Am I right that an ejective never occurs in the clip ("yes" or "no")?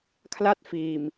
yes